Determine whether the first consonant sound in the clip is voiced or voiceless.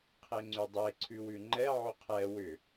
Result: voiceless